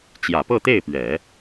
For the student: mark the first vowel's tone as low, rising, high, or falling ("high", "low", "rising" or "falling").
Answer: low